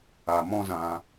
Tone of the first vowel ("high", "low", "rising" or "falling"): low